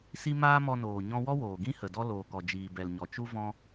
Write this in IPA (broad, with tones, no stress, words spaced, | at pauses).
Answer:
si˦ maː˦mɔ˧noː˨ ɲɔ̃˧wɔ˦woː˨ɡĩ˦ hə˨dɔ˦ loː˨kɔ˨ d͡ʒiː˨bɛ˨lɲɔ˨ t͡ʃu˦vɔ̃˦